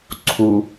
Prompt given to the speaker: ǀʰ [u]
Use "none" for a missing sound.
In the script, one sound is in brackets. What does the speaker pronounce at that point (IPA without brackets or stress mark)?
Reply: u